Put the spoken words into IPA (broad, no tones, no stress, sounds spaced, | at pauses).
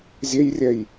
zʲ e j rʲ ɛ j